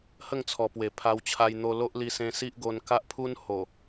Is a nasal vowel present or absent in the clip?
present